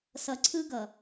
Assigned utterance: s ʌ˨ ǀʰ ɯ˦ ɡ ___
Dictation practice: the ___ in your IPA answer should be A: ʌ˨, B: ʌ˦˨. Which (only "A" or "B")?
A